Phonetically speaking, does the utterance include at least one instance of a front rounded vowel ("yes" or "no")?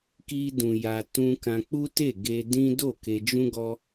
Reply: no